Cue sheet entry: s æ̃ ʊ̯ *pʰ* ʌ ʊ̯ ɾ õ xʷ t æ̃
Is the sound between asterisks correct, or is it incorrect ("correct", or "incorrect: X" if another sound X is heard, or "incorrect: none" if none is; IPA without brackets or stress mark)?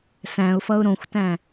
incorrect: f